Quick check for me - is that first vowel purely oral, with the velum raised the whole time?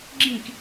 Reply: no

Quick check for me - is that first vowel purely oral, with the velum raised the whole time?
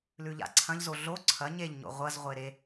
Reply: yes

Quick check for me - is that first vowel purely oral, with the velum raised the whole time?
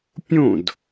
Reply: no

